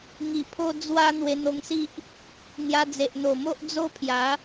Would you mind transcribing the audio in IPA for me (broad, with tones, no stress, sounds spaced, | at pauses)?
ŋ i˨˩ pʰ o˧ d͡z w a˧ n̪ w e˧ n̪ o˧ ŋ s i˦ ʔ | n̪ j a˧ d͡z e˨ ʔ n̪ o˨˩ m o˦ ʔ d͡z o˦ pʰ j a˨˦